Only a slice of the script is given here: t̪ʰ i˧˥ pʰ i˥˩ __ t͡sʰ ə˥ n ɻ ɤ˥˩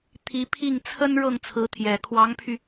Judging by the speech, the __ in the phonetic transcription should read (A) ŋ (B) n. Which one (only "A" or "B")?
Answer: A